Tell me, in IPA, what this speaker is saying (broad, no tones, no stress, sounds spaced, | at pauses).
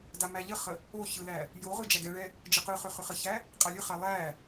d a m æ ʎ ə χ ə | o ç ɯ l æ | j o ʁ ɯ d͡ʒ æ ɡ ɛ ɭ ɛ | d͡ʒ ə q ɯ χ ʏ χ ʏ χ ə ç æ | qʼ a lʲ ɯ χ a lˠ æ